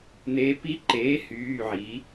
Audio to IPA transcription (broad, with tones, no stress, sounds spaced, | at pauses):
n̪ eː˧˥ p i˧˥ ǃ eː˩˥ h yː˩˧˩ ʕ iː˩˥